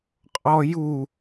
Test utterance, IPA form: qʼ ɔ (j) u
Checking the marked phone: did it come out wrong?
no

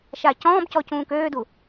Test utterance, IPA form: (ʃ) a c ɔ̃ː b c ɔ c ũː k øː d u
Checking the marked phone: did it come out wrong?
no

